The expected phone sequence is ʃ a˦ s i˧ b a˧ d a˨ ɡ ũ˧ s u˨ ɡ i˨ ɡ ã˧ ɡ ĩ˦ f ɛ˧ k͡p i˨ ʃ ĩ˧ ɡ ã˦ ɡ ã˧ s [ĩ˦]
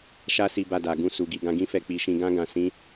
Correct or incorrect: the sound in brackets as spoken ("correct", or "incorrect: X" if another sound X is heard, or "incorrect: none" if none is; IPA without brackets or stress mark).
correct